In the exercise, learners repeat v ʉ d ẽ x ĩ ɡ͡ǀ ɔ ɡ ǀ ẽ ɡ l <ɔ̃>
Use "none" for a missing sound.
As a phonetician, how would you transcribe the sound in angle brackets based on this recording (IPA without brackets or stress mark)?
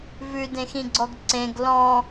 ɔ̃